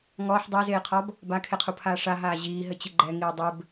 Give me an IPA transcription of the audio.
ŋ ɔː ħ dˤ e z eː qʰ ɔ b | b a kʰ e qʰ u pʰ aː ʂ a ɦ aː ʑ iː ɦ ɘ t͡ɕ i ɡ͡ǃ ɛ ŋ iː dˤ ɘ b

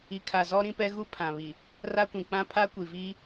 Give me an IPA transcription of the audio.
i˨ kʰ a˨ z ɔ˦ ɾ ĩ˦ p ɛ˦ ɣ u˦ pʰ ã˨ β i˨ | r a˦ kʷ ĩ˨ k͡p ã˦ pʰ a˦ kʷ i˨ v iː˦

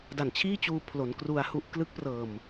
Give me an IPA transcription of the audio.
d a˨˩ n t͡ɕʰ iː˥˩ t͡ɕ uː˧ pʰ l o˩˦ n k r u˧ a̯ h u˥˩ ʔ k l ɯ˦˥ k̚ p r ɤː˨˩ m

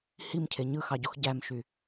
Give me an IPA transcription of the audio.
h i m cʰ e ɲ ɯ x ɑ ɟ o x ɟ æ m ʃ y

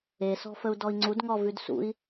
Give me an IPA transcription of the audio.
e s ɔ̤ f ə u̯ d ɔ i̯ ŋ͡ǀ u d ŋ ɔ v ʉ d s ṵ i̯

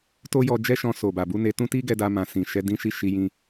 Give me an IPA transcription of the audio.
t o˦ j ɔ˧ d͡ʒ ɛ˦ ʃ ɔ̃˧ s o˨ b a˨ b u˧ n e˧ t ũ˦ t i˦ ɡ ɛ˧ d a˧ m ã˨ s ĩ˨ ʃ ɛ˨˦ d ĩ˦ ʃ i˦ ʃ i˧ j ĩ˧

